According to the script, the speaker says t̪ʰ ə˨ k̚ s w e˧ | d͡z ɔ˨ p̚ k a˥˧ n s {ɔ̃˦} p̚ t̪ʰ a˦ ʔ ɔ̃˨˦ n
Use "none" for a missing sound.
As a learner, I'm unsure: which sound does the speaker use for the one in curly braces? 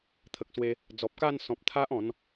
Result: ɔ̃˨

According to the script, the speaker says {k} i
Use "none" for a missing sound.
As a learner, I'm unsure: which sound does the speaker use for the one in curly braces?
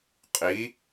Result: qʼ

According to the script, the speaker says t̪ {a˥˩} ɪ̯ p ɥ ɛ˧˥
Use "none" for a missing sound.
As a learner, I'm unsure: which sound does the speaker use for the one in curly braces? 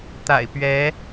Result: a̰˨˩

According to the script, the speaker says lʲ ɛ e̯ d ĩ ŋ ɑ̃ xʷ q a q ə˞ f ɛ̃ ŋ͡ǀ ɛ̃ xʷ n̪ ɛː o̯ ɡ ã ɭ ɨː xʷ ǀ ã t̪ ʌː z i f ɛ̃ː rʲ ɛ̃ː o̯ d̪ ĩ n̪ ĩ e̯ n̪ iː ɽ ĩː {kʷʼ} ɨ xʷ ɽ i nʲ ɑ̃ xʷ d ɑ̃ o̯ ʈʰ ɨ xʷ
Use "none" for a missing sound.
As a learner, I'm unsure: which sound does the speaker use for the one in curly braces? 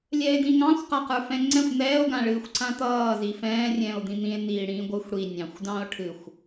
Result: ɡʷ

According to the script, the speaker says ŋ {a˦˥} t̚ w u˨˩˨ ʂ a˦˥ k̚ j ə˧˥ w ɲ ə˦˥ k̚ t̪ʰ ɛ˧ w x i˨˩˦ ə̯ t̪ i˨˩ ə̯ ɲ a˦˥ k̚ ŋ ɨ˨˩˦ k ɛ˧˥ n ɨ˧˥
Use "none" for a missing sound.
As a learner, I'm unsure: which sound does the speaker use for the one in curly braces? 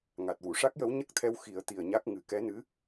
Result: a˨˩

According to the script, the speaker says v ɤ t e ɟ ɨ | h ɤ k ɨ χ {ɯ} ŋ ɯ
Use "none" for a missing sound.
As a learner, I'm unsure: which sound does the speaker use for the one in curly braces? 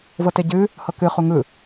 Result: u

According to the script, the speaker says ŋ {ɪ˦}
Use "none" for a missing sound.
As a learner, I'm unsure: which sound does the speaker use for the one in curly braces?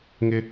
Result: ɪ˦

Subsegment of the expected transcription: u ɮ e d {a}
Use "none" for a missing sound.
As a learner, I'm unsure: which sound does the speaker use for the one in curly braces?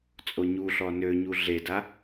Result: a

